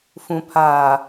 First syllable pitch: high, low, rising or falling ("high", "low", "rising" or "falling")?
low